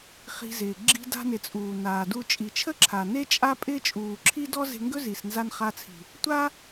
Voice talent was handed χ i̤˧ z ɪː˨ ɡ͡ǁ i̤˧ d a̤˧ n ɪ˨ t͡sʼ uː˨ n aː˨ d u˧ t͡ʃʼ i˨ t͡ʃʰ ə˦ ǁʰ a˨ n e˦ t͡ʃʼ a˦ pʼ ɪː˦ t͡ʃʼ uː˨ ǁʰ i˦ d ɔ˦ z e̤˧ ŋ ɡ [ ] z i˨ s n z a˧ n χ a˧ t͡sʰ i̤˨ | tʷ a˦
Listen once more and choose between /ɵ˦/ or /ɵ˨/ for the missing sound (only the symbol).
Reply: ɵ˦